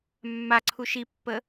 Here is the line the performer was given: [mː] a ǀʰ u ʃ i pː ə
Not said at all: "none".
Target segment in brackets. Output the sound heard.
mː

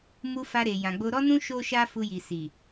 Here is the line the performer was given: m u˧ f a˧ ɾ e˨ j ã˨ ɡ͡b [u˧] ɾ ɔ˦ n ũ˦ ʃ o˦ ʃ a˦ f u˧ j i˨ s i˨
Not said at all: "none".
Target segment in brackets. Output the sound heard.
o˧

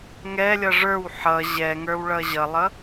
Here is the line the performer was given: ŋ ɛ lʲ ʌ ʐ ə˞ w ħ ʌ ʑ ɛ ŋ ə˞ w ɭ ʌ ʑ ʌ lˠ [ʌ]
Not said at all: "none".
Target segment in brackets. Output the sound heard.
ʌ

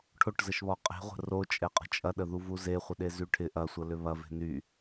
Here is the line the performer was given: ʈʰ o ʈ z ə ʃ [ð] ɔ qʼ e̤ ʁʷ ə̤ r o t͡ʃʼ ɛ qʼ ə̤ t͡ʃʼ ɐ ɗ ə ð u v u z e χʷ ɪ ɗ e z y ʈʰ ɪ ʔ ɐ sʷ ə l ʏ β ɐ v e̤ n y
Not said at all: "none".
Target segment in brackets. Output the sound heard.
β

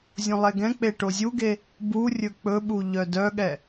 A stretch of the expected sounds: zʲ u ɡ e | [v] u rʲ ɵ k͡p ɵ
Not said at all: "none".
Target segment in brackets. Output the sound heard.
b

